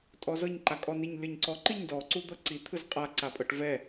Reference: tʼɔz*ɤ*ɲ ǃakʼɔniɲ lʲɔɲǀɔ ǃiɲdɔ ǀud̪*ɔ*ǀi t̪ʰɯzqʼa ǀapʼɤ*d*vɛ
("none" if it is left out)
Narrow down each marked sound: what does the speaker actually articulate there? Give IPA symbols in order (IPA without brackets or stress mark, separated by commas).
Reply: ɤ, ɤ, ʈ